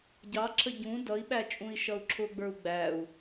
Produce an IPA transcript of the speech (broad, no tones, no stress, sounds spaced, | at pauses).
ɟ ɑ ǁʰ ə ɟ ũ d ʌ i̯ ɓ æ t͡ʃʼ ũ i̯ ʃ ʌ u̯ ǁʰ ʊ ɡ͡b ə˞ u̯ ɡ͡b æ u̯